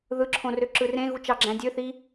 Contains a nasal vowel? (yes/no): yes